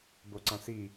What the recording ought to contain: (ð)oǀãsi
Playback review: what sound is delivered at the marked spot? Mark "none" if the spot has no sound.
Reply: b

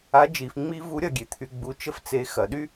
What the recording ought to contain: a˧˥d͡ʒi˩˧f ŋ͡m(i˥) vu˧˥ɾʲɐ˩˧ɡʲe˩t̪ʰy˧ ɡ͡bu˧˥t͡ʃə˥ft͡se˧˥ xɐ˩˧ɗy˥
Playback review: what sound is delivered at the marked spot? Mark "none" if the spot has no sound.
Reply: i˥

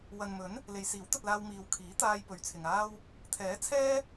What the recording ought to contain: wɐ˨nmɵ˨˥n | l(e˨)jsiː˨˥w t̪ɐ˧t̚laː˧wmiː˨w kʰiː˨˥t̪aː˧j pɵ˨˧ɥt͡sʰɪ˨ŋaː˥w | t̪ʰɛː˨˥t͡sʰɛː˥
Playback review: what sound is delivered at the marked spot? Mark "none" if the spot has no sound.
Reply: e˨˧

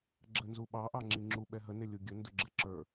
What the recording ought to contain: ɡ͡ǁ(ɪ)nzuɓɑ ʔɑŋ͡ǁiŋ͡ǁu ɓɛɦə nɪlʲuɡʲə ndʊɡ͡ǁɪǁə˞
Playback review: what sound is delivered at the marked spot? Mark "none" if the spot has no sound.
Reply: ə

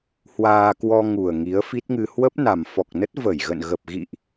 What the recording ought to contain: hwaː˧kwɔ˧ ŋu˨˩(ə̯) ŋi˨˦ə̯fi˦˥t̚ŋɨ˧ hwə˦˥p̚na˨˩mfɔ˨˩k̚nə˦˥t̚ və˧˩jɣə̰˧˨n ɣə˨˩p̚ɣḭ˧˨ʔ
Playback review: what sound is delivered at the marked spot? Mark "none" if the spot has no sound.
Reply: ə̯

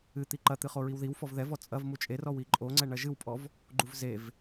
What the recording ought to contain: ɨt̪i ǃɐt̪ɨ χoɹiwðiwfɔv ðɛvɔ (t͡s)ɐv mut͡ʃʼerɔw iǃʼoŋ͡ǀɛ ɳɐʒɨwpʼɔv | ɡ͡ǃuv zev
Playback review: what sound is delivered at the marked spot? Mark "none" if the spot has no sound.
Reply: t͡sʼ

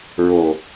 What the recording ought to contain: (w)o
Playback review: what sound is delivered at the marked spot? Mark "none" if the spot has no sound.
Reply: ɹ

